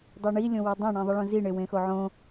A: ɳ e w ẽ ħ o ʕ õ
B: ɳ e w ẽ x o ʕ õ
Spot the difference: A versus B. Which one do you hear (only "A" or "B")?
B